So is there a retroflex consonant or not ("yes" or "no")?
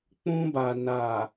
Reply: no